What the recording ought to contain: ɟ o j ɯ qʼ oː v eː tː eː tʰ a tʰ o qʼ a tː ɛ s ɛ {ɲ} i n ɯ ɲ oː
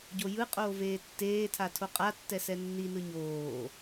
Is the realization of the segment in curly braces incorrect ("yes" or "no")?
yes